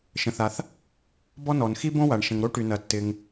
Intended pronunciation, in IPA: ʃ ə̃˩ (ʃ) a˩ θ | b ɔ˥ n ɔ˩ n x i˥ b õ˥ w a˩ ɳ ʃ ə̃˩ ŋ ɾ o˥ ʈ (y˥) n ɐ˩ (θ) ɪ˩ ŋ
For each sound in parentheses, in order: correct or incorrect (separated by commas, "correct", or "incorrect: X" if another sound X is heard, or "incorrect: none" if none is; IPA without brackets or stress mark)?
incorrect: θ, incorrect: y˩, incorrect: tː